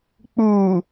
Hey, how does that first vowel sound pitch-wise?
low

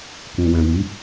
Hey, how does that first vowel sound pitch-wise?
low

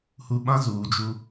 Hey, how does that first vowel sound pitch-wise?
low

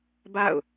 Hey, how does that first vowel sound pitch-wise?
falling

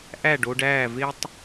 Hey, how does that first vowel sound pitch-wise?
falling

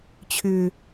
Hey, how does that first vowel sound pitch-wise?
low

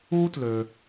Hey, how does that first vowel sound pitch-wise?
high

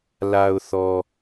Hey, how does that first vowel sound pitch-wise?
low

